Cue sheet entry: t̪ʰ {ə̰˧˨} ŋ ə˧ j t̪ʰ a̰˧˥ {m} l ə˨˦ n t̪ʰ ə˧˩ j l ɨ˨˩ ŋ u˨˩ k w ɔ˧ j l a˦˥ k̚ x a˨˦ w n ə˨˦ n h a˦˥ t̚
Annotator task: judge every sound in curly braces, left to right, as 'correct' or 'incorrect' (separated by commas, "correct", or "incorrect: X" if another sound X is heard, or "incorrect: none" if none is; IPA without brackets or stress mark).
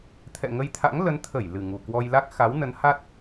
incorrect: ɛ̰˧˨, incorrect: ŋ